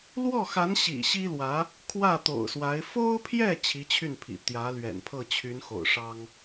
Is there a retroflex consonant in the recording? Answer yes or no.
yes